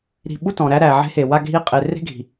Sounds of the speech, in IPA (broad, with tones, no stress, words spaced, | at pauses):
ɾi̤˨ ɓu˦tɔ̃˨ɾæ˦ ɾæ˨ʕe̤˦he˨ wa˦ɡʱi˦ qʼe˨ re̤˦ɡʱi̤˨